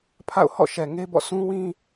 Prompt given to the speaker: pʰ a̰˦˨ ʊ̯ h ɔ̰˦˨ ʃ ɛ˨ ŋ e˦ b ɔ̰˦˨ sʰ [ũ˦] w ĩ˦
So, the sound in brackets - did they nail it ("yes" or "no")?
yes